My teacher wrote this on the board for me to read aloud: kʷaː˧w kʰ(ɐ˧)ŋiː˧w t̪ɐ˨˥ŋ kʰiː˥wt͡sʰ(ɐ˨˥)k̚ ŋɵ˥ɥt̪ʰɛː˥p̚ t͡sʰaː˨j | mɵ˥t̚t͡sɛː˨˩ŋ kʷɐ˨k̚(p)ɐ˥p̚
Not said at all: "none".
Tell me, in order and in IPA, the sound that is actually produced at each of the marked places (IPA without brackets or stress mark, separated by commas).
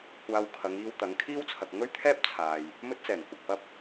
ɐ˨˧, ɐ˨, p